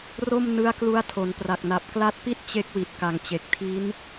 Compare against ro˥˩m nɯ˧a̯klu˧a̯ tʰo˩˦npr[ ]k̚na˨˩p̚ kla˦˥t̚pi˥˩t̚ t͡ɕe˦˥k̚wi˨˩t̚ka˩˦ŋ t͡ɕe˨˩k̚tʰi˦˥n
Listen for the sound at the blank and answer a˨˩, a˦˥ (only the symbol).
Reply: a˨˩